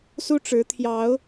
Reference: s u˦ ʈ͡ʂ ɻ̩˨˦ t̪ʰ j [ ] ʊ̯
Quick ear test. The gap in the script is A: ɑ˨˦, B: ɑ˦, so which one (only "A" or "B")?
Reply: A